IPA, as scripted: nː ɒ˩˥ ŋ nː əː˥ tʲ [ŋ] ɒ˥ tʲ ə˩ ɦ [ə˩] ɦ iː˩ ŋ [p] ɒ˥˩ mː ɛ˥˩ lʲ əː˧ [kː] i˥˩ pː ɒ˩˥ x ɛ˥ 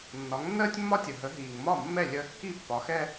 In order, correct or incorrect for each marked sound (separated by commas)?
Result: incorrect, incorrect, incorrect, correct